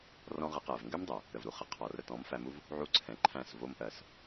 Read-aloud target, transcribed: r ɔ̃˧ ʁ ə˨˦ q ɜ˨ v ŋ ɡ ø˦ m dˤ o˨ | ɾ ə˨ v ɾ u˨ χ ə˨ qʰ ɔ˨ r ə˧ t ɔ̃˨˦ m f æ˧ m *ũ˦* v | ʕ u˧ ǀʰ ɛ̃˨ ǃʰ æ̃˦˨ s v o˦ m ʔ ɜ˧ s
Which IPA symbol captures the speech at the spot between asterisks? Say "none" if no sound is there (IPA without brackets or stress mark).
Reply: u˦